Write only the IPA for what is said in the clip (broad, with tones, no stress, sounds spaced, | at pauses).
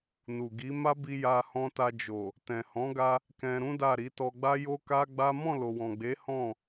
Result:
n u˨ ɡ i˨˦ m a˦ b i˧ j a˧ h ɔ̃˧ t a˧ d͡ʒ o˨ | t ɛ̃˨ h ɔ̃˨˦ ɡ a˧ | k ɛ̃˧ ɾ ũ˦ d a˦˨ ɾ i˨˦ t ɔ˧ ɡ͡b a˦ j o˦ k a˦ ɡ͡b a˦ m ɔ̃˦˨ l o˨ w ɔ̃˨ ɡ͡b e˨˦ h ɔ̃˦˨